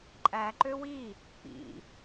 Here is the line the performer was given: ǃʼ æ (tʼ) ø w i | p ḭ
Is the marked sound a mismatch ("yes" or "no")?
yes